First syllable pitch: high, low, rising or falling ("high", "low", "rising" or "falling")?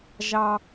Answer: high